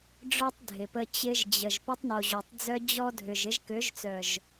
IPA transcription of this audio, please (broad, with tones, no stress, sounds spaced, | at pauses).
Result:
ɖ͡ʐ œ˦ tˤ dʱ ɪ˨ p ə˧ t͡ɕ ɪ˧ ʒ d͡ʑ ə˨ ʒ p ø˧ tˤ n o˨ ʑ o˨ tˤ d͡z œ˧ d͡ʑ ɔ˦ dʱ ʏ˨ ʒ ɪ˧ ʒ k ø˨˦ ʒ t͡s œ˨ ʒ